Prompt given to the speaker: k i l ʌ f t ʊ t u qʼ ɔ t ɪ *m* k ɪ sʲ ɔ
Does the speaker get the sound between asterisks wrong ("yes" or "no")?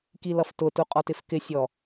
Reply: yes